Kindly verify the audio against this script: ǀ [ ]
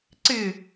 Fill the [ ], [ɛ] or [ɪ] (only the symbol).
ɪ